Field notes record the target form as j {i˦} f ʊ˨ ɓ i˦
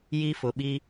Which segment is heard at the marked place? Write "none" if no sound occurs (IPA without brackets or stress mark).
i˦